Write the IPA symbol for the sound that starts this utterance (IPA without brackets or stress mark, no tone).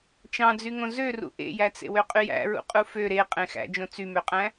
t͡ʃ